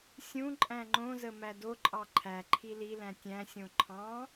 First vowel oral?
no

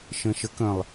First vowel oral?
no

